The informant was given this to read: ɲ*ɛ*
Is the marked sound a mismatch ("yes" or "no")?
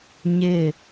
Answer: yes